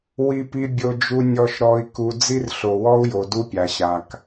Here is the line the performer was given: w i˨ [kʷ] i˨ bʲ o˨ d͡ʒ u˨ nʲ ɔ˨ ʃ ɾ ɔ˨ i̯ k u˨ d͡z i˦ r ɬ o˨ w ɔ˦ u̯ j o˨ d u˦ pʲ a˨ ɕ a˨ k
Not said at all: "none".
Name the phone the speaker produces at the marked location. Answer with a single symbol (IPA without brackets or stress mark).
p